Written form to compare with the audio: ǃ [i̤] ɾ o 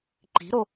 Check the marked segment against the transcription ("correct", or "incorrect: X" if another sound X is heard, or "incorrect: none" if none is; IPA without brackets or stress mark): correct